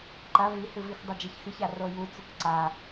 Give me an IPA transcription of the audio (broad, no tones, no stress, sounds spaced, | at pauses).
ǃ ɐ v i h ɨ v i x dˤ ɐ d͡ʒ ɐ ç x ɨ ç a r o j u t͡s u k ǀ a